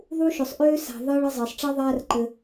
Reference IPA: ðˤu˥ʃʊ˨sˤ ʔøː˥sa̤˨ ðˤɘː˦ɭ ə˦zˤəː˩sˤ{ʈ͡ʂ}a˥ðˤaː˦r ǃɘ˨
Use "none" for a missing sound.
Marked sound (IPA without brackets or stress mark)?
ʈ͡ʂ